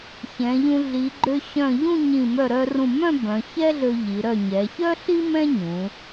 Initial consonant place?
palatal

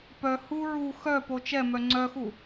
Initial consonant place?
labial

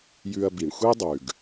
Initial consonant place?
palatal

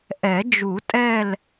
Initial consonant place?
glottal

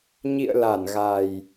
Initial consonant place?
palatal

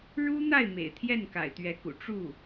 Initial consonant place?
retroflex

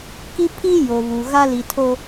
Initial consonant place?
velar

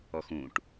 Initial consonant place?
velar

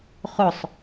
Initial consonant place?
uvular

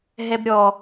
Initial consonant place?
glottal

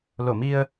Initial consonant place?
alveolar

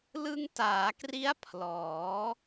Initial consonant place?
alveolar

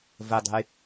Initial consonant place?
labial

